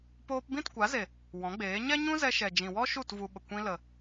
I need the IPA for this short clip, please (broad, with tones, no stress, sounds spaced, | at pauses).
p oː˧ p b ĩ˦˨ t kʷ a˨˦ z e˨ | w ɔ̃˨˦ ɡ͡b eː˨˦ ɲ ɛ˦ ɲ ũ˦ z ɛ˧ ʃ ɛ˨ d͡ʒ ĩ˨ w ɔ˦ ʃ u˦˨ t v u˧ ɓ ə˨ kʷ ĩ˧ l ə˨